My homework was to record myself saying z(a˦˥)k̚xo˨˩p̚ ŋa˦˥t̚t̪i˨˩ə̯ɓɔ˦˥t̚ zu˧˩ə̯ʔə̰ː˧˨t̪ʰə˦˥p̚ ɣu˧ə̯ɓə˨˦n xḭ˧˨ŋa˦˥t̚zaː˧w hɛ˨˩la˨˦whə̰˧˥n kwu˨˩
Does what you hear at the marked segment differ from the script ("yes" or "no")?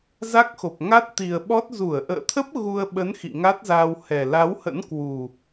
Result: no